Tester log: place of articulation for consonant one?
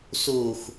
alveolar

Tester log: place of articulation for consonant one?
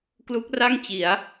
velar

